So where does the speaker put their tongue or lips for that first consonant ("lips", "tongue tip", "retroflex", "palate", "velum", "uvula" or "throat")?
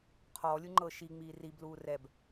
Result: uvula